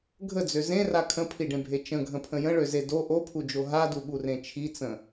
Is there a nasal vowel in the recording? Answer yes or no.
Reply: yes